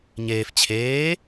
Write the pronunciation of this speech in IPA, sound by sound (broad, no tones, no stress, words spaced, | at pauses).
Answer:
ɲeːf t͡ɕʰeː